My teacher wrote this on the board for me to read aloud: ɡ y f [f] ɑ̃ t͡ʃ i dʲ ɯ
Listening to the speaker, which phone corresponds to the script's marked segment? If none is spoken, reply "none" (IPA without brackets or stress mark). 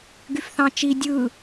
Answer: θ